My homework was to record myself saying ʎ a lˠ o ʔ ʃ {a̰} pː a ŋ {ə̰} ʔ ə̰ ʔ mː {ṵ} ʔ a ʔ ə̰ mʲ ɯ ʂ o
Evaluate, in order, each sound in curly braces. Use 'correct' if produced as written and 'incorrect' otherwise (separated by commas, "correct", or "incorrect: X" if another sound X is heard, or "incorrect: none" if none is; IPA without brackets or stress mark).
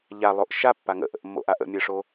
incorrect: a, correct, incorrect: o̰